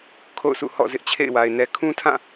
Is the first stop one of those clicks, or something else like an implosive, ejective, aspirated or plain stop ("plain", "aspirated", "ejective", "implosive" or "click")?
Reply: aspirated